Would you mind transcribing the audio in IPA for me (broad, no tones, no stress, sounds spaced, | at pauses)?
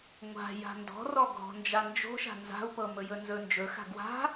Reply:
ŋʷ a̤ j a̤ n d ɔ̤ r ɔ ɡ ɔ̤ n d͡ʒ a n d͡ʒ o̤ ʃ a̤ n z a̤ u̯ p ɤ m ɵ j ɵ n z ɵ n d͡ʒ ɵ x a̤ ɡ w a̤